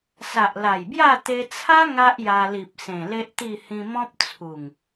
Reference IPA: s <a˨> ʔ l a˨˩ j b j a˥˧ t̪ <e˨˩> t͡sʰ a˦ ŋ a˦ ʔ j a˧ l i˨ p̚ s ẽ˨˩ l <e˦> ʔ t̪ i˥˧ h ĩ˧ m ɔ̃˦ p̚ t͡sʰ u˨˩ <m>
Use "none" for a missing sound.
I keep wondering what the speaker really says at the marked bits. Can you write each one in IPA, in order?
a˨, e˧, e˦, ŋ

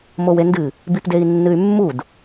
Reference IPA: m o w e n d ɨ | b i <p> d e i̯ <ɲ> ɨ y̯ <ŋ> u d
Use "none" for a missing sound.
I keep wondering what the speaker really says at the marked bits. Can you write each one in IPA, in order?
p, nː, mː

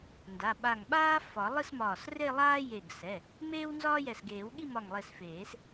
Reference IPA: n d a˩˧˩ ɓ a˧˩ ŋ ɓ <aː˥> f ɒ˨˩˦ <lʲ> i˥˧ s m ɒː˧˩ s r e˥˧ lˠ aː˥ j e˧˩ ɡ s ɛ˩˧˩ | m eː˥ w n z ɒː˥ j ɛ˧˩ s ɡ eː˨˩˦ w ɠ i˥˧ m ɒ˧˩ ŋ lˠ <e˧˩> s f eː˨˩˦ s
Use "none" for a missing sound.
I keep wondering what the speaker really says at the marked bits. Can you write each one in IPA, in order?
aː˥, lˠ, e˧˩

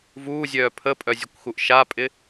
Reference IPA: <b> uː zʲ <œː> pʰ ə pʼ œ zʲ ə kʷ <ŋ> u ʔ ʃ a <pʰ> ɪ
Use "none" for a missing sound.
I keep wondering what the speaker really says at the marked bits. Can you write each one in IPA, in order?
v, œː, x, pʼ

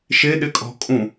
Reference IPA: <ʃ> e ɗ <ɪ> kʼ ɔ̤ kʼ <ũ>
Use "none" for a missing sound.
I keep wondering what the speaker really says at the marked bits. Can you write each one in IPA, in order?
ʃ, ɪ, ũ

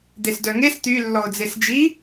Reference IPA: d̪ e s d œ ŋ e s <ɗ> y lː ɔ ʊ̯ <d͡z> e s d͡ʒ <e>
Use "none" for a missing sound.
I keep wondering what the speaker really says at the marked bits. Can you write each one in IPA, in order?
t̪, d͡z, i

